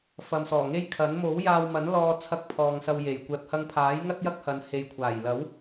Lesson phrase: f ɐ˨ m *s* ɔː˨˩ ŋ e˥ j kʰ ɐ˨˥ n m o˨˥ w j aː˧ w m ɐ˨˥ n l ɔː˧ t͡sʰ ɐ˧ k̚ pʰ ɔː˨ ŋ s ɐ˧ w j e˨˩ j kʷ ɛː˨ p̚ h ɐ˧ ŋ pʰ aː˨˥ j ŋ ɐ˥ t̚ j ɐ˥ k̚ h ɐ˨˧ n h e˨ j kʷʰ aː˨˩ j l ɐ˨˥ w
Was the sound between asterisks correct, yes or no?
yes